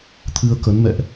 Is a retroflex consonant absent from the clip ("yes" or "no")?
yes